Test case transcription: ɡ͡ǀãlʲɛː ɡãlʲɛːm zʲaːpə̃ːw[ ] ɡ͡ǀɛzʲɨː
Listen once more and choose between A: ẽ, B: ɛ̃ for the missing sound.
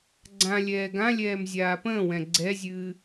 B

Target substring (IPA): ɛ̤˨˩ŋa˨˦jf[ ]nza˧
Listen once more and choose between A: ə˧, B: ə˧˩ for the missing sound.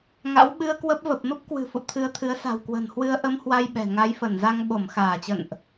B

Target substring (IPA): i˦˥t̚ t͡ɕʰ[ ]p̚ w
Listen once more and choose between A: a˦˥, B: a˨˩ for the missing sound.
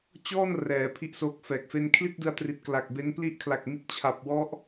B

